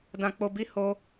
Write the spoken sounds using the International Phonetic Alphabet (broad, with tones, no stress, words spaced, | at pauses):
dã˧k͡po˧bi˦ ho˦